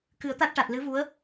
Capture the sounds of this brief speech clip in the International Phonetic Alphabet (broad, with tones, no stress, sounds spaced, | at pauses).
k ɨ˨˩˦ ə̯ t̪ a˦˥ t̚ ʈ a˨˩ t̚ l ɨ˧˥ v u˧˥ ə̯